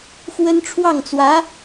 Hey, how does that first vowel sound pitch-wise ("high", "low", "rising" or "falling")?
high